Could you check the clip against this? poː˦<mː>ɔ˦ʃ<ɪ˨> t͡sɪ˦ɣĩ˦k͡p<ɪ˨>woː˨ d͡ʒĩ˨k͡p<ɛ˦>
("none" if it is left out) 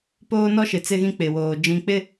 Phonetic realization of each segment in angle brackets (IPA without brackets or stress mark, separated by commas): n, ɪ˨, ɪ˨, ɪ˦